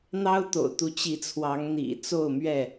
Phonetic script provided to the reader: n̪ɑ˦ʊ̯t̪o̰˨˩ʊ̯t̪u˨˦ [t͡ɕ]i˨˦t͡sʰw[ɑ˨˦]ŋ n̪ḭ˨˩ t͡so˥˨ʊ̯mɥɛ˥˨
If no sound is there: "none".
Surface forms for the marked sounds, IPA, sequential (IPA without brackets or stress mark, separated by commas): t͡ɕ, ɑ˨˦